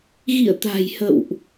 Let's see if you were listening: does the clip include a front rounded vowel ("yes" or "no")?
no